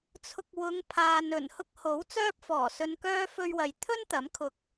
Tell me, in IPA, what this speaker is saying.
t͡sʰ ʊ˧ k̚ w ʊ˨˧ ŋ pʰ aː˨ n ɵ˨˩ n h ʊ˥ k̚ h o˨˥ w t͡s œː˥ p̚ f ɔː˨˩ s ɵ˧ n k œː˥ f ɵ˧ ɥ w ɐ˨ j t̪ʰ ɵ˥ n t̪ ɐ˨˥ m kʰ ʊ˧ k̚

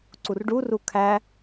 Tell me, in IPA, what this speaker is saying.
ǀ u r ɖ u r u kʰ æ

